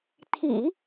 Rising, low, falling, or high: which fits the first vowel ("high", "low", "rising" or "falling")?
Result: low